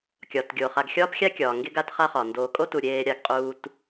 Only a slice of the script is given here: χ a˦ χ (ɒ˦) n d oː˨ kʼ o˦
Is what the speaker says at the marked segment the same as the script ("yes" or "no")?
no